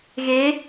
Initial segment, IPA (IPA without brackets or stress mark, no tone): ɣ